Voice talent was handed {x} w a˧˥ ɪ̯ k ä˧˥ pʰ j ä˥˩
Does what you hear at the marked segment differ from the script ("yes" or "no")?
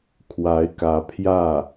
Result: yes